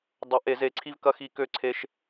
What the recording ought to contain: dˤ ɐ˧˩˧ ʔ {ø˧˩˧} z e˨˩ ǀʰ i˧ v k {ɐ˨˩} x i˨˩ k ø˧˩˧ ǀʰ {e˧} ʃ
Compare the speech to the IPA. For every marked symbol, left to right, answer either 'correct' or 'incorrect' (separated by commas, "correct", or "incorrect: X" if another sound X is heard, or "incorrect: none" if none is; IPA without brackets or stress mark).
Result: incorrect: e˧˩˧, incorrect: ɐ˧, correct